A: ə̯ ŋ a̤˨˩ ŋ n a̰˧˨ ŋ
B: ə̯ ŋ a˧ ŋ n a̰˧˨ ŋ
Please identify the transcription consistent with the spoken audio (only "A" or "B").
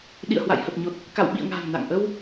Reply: A